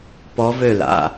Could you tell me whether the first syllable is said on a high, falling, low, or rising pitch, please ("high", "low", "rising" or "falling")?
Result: rising